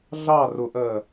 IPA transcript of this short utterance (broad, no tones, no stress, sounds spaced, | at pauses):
ɮ ɑ r ʊ ʔ ɜ